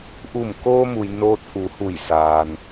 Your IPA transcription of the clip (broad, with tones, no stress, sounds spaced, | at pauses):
ʔ u˧˩ m k oː˧ m u˩ j n oː˧ t̚ ʔ u˩˧ h u˧˩ j s aː˩ n